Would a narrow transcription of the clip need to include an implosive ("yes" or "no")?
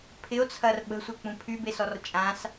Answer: yes